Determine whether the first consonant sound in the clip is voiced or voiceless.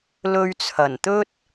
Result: voiced